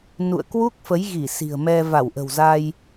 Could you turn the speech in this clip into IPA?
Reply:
nṵ˧˨ə̯kwu˦˥k̚ fə˨˦jɣi˧˩ si̤˨˩ə̯mɛ˧ va˧˩wʔə̤˨˩wza˧j

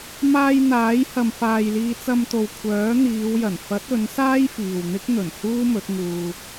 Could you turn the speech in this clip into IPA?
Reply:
maː˧jn̪aː˨˥j hɐ˨mfaː˨jliː˧ t͡sɐ˧mt̪o˨w kʷʰœː˨˥ n̪iː˨˧wjɐ˨˩n fɐ˨˥t̚ ɵ˨˥nsaː˥j fiː˨wn̪ɪ˥k̚n̪ɵ˨˩n huː˥mɵ˨˥t̚ ŋuː˧

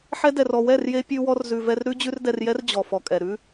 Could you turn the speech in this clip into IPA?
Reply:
ħɛ˧dɛ˨rɔ˨ wɛ˦˨rje˧ pʲʉ˧wɔ˧r zʉ˨vɛ˧r ɾʉ˦ d͡ʑʉ˦rdɛ˧rjɛ˦r d͡ʑɔ˨fɔ˨kʼɛ˨ ɾʉ˧

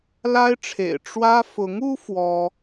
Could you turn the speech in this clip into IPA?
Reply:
la˥ɪ̯ʈ͡ʂʰḛ˨˩ɪ̯ ʈ͡ʂwä˥ fʊ˧˥ŋu˥ fwɔ˥

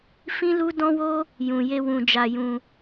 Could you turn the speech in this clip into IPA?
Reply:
fĩ˦lu˦dɔ̃˦wo˦ | jũ˨je˧ wũ˧d͡ʒa˧jũ˧

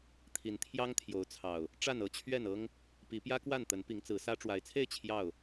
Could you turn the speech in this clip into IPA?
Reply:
t̪ʰi˨˦nt̪ʰjɑ˦ŋt̪ʰjo˨˦ʊ̯t͡sʰɑ˨˩ʊ̯ | ʈ͡ʂa˥˨nɤ˦t͡ɕʰɥɛ˥˨nɤ˦ŋ | pi˨˦pjä˦kwa˥˨nt̪ə˨˦n pi˨˦ŋt͡sɹ̩˨˦sä˦ ʈ͡ʂwa˨˦ɪ̯t͡sʰe˥˨ɪ̯ t͡ɕʰjɑ˥˨ʊ̯

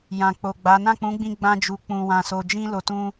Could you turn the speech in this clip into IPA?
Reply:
jã˨k͡po˨ɡ͡ba˨˦ nã˦˨k͡pũ˨˦ɡ͡bĩ˧ ɡ͡bã˧d͡ʒu˨ k͡pũ˨wã˨so˨ d͡ʒĩ˧ lo˨tũ˧

